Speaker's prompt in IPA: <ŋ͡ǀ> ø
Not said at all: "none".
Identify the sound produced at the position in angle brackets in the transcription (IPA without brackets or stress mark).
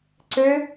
ǀ